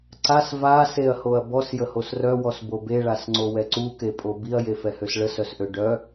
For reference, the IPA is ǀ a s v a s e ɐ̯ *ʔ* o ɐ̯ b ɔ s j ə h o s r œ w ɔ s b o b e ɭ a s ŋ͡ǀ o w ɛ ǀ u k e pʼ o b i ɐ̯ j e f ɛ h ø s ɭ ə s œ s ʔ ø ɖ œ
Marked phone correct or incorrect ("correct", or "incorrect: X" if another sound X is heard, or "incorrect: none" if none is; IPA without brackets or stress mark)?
incorrect: h